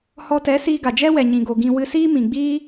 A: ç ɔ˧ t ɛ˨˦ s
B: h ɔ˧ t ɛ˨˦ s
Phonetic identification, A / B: B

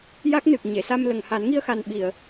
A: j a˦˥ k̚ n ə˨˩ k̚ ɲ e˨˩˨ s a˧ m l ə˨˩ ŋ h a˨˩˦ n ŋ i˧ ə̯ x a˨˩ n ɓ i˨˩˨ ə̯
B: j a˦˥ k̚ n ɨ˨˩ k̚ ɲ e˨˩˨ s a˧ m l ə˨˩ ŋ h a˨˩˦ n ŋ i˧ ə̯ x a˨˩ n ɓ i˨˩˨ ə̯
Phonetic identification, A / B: B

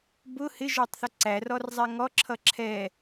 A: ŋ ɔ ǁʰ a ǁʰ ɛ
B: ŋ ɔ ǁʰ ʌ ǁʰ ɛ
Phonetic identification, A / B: B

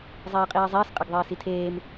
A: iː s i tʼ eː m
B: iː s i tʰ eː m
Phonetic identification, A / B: B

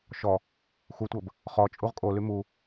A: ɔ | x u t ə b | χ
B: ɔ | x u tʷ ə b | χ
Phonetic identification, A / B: B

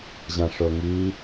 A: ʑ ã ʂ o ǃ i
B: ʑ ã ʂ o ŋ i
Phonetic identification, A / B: B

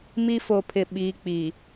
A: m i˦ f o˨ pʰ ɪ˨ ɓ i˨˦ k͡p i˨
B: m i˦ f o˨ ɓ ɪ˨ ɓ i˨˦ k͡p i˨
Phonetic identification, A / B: A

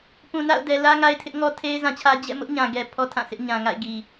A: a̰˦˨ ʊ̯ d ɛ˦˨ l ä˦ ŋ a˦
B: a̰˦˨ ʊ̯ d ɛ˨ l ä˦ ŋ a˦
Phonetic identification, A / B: B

